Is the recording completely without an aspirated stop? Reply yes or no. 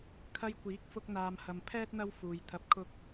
no